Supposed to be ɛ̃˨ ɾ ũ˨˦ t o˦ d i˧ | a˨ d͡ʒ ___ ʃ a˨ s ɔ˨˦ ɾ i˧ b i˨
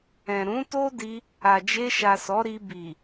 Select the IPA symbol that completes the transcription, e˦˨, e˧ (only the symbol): e˧